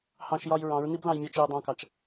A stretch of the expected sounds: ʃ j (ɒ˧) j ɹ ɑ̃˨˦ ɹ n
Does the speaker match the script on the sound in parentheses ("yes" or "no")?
yes